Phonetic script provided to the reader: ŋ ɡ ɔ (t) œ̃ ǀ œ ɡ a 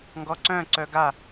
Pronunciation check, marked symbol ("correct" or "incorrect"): incorrect